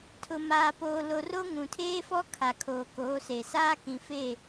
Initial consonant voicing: voiceless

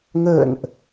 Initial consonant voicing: voiced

